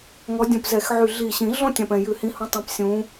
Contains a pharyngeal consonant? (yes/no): yes